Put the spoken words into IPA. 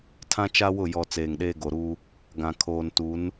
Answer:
tʰ ã˦ t͡ʃ a˦ w ʊ˦˨ j ɔ˨ t͡s eː˨ ŋ ɗ eː˦ ɡ o˨ ɾ uː˦ | ɡ ã˨ kʰ oː˨ n t u˨˦ n

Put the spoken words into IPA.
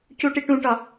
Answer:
c u ʈ i ʈ ũ ʈ ɒ

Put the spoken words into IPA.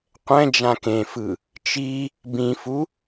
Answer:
qʷ ɛ̃ d͡ʒ ã k ẽ f ɯ | t͡ʃ i | b ĩ f u

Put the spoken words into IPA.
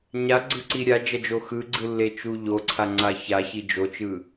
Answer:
ɲ a ɡ͡ǀ ɯ ǀ i ɾʲ a d͡ʒ ʌ d͡ʒ o x ɯ ɡ͡ǀ ɯ lː e t͡ʃ u ʎ o ǀʰ a ŋ͡ǀ a ç a ç i d͡ʒ o t͡ʃ ɯ

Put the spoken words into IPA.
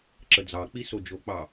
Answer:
ǁ ə d͡z ɑ k͡p i s o d͡ʒ o k͡p ɑ

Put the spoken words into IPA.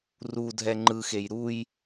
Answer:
r u dʱ ɛ ŋ͡ǃ ɯ x e j ɾ u j

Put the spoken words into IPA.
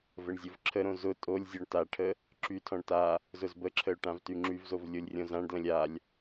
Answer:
v ə ɳ zʲ ʊ v ǁʰ ə ɾ õ z ʊ tʼ o lʲ zʲ ɔ ɳ t a ʈʰ ə | ǁ y tʰ ɔ̃ ɳ t a | z ʊ z b ə ǁʰ ə ʊ̯ ʈ ã v t y ŋ͡ǁ y v z o v lʲ o lʲ rʲ õ z ã ɳ d l ə̃ lʲ a lʲ

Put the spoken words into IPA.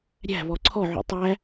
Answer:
ɾʲ æ̤ β ɔ ǀʰ ɔ ʕ ṵ tˤ æ

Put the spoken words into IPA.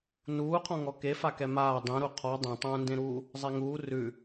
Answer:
n uː qʰ ɔ̃ ŋ ɔ k e f a k ɛ m aː dˤ ẽ ɾ u qʰ ɔ dˤ ẽ tˤ ũː n d ẽ ɾ uː | zˤ e ŋ uː r ʉ

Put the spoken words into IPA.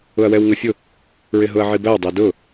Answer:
ʊ ɐ̯ w ɛ w ŋ ə fʲ ʊ | ɹ ɪ ɦ ʊ ɐ̯ ʕ i b æ w dˤ ɛ d ʊ

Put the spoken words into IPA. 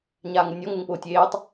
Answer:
ɲ aː ŋ u nʲ ɔ ŋ u ŋ p ʊː tʲ eː tˤ

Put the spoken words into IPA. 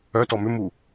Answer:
œ t ɔ m ʏ m u

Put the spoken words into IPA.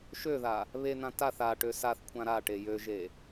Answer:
ʃ ø ð a | β e n̪ ã t a θ a ʈ ø s a θ kʷʰ ã ɾ a ʈ e j ø ʒ e

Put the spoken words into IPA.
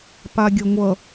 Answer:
p a ɡʲ ʌ ŋʷ ʌ

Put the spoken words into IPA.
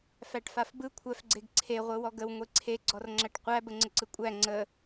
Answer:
f æ ʈ f a f b ɯ kʷʰ æ f ɡ͡ǀ e ɡ ǀʰ e ʁʷ ɯ w ɔ ɡ ə w ŋʷ e ǀʰ e ɡ͡ǀ ɔ r ŋ͡ǁ æ ʈ qʷ æ b ə ŋ͡ǀ ə ǀ ɯ kʷʼ æ ŋ͡ǀ ə

